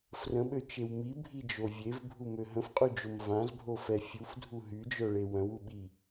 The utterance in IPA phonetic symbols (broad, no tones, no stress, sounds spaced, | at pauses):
f r ə̃ ɓ ø t͡ʃ e w m i bʱ i d͡ʒ o vʲ e v bʱ u m ø ɦ ə̃ f qʼ y d͡ʒ o m v ã z bʱ o f ɛ fʲ u f dʱ u ɦ y d͡ʒ œ ɭ e w œ̃ w u ɓ i